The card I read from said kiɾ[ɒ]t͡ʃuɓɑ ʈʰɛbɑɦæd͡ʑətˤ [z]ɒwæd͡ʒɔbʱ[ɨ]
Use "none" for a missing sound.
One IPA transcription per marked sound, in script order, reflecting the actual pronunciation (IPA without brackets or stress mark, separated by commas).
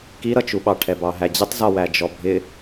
ʌ, z, ɪ